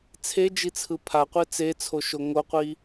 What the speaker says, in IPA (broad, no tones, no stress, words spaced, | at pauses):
t͡sʰed͡ʒit͡sʰɯ pʰaqʷe t͡set͡sʰoʃo ŋoqʷi